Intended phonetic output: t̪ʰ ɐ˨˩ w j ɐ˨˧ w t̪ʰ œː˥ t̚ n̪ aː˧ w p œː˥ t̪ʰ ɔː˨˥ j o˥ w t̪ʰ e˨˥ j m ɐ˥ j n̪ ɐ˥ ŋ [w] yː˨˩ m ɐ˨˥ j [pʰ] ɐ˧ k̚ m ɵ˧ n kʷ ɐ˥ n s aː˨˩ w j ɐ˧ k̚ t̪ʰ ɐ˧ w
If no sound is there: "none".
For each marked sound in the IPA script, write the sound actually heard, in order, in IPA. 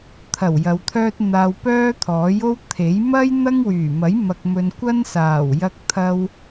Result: w, m

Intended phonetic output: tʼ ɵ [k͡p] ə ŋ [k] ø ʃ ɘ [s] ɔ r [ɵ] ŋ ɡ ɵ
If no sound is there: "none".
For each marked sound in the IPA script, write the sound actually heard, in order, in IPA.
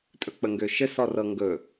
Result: k͡p, ɡ, s, ɤ

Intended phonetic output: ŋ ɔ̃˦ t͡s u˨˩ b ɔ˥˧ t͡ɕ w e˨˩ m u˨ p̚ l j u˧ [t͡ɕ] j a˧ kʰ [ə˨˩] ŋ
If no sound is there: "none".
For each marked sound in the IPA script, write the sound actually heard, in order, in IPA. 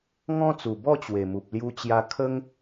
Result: t͡ɕ, ə˦

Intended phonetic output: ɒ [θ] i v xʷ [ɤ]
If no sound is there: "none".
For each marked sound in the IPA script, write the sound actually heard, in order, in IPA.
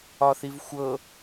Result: θ, ɤ

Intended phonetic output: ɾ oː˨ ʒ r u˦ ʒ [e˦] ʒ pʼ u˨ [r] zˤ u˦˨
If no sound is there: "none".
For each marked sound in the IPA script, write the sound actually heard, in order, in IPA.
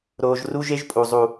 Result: e˦, none

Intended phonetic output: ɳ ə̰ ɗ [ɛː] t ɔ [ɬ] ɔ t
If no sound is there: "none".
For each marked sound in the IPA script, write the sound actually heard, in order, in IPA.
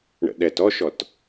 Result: ɛ, ʃ

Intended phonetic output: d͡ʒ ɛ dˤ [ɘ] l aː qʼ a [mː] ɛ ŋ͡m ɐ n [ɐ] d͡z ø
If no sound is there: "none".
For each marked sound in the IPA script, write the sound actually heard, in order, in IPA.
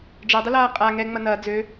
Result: ɘ, ŋ, ɐː

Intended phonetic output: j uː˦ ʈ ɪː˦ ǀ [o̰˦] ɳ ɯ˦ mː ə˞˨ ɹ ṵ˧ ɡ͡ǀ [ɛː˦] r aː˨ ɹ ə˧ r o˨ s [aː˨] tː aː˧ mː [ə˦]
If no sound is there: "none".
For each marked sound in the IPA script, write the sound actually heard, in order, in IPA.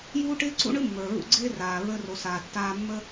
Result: ṵ˦, ɪː˦, aː˨, ə˦

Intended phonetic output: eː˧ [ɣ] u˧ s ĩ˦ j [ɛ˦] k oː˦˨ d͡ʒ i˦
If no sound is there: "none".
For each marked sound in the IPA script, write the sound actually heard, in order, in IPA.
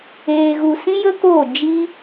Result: ɣ, ə˦

